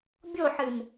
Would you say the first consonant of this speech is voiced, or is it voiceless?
voiced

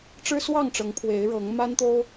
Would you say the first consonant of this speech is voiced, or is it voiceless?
voiceless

